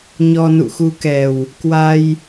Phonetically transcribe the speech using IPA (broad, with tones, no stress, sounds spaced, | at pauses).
ɲ ɔ˧ n ṵ˧˨ x u˧ k ɛ˨˩ w | k w a˧ j